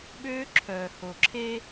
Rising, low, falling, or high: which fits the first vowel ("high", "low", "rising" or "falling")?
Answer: high